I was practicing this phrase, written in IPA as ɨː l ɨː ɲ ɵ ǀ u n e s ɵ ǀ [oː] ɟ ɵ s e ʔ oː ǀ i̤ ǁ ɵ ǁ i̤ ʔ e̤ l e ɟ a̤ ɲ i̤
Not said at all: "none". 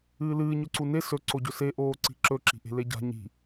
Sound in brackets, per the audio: o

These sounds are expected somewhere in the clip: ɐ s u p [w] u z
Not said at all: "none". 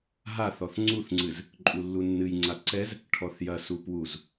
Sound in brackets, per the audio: w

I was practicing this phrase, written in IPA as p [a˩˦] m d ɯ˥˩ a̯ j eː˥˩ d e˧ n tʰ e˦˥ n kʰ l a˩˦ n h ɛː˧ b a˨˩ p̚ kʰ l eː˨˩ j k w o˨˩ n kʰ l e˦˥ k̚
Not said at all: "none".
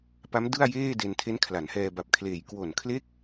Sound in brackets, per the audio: a˦˥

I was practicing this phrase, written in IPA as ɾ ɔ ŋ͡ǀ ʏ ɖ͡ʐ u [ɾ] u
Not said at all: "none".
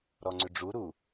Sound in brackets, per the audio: ɾ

